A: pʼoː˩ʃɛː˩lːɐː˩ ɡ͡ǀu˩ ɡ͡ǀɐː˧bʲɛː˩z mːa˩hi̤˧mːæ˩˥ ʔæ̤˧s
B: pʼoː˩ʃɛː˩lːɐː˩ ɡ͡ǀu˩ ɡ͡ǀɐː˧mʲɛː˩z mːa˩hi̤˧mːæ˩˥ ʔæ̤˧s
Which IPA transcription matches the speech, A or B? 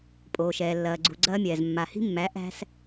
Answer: B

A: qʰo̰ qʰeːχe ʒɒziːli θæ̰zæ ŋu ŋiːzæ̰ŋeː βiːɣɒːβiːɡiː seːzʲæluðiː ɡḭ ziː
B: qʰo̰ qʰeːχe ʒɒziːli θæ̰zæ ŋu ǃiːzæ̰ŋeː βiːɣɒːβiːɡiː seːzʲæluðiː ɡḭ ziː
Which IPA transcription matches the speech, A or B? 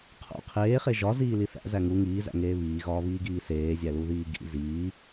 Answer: A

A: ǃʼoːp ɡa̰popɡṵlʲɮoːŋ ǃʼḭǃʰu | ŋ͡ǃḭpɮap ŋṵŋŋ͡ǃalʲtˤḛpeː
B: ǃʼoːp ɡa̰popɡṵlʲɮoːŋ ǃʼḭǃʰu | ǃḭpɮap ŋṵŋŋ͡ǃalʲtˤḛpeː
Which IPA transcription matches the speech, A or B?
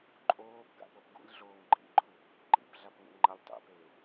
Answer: B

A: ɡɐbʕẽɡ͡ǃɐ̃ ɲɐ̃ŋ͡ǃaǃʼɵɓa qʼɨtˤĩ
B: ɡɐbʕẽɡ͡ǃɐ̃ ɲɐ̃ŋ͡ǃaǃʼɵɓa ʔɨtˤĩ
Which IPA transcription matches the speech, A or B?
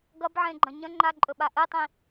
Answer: B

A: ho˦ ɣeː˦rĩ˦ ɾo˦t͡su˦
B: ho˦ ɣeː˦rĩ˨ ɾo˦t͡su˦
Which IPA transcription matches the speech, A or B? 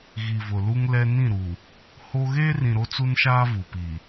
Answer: B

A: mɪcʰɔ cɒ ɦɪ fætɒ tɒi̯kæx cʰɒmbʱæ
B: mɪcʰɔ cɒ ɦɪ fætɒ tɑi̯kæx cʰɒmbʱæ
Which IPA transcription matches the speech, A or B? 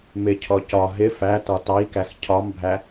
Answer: B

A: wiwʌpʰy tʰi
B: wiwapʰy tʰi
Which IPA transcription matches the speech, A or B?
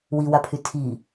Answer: B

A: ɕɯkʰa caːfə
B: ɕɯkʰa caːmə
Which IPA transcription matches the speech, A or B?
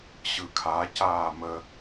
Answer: B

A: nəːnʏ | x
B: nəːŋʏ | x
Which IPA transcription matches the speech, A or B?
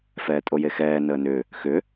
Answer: A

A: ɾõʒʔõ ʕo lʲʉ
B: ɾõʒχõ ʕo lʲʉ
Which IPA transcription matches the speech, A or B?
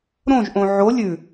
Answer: A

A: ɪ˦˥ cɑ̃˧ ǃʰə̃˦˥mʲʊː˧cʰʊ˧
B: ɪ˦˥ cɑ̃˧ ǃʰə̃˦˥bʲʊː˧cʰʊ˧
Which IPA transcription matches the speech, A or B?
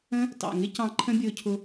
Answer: B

